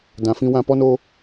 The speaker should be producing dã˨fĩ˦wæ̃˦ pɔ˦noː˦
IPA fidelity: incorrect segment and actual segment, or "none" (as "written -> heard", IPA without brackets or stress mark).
æ̃˦ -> ã˦